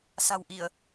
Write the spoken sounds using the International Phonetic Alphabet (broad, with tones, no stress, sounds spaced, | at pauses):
s a̤˨˩ w ʔ i˧˩˨ ə̯